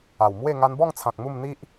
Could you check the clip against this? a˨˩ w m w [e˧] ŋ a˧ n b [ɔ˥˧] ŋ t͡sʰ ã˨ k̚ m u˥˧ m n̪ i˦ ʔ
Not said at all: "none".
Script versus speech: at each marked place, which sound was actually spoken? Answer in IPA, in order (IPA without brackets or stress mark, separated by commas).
e˥˧, ɔ˥˧